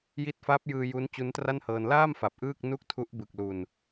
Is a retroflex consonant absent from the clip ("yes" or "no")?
yes